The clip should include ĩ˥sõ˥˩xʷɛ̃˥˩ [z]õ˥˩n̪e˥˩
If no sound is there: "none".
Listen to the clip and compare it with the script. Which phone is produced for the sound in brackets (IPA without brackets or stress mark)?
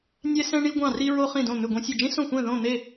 ð